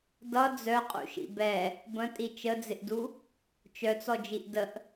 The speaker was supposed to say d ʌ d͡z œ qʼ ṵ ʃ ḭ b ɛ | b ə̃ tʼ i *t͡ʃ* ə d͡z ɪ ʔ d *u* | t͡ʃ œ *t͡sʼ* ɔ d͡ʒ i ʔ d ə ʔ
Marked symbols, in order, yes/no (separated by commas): yes, yes, no